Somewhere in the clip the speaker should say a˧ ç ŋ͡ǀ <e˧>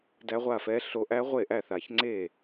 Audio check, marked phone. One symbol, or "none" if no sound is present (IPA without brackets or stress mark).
e˥˩